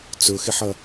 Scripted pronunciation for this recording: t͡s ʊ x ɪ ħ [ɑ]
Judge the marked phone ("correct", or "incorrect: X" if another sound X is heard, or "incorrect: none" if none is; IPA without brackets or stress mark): incorrect: ʌ